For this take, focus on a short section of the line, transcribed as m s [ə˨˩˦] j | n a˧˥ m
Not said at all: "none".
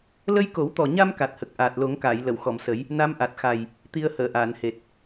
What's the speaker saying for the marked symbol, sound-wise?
ə˨˩˦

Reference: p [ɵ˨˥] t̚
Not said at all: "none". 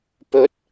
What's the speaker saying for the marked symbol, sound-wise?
ɵ˨˥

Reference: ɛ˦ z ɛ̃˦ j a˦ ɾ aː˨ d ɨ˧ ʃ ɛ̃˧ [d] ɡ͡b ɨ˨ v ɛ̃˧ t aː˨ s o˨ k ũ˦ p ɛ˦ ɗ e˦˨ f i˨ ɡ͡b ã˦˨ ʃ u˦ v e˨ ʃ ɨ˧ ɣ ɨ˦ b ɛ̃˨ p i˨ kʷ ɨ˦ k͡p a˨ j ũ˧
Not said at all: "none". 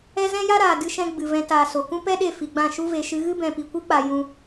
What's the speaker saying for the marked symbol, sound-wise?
none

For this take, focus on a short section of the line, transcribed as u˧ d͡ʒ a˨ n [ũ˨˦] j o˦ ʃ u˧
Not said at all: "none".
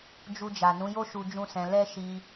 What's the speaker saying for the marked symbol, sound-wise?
ũ˨˦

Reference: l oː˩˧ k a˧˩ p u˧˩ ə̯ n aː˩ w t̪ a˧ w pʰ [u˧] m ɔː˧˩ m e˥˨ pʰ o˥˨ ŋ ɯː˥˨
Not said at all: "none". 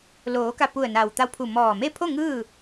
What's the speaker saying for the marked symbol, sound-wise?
u˧˩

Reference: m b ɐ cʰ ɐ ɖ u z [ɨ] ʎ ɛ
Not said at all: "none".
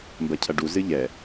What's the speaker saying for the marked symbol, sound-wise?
ɨ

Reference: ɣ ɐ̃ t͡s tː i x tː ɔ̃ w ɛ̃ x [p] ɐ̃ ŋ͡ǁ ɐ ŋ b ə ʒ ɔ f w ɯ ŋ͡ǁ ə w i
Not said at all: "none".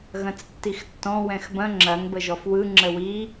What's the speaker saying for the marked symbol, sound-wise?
b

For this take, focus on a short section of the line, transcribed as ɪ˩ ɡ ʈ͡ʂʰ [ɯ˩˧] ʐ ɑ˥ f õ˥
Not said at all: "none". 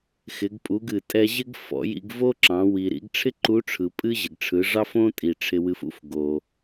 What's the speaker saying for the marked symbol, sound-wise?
ɯ˩˧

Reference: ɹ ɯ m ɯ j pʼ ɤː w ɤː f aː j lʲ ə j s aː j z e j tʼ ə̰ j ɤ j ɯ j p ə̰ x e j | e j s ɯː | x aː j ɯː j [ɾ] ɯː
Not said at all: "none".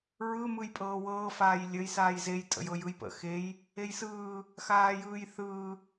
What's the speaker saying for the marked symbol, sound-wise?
θ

